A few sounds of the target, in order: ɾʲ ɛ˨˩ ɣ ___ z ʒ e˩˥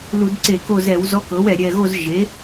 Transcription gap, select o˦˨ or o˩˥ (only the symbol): o˦˨